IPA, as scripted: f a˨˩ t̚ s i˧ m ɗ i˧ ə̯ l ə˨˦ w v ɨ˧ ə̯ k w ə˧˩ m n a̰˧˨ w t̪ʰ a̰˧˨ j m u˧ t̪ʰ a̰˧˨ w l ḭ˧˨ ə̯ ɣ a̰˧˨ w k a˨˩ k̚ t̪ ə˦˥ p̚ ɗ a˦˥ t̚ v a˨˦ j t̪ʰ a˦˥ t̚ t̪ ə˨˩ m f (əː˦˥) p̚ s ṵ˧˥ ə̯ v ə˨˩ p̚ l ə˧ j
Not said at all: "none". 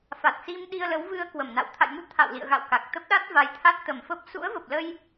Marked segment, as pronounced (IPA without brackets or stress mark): ə˦˥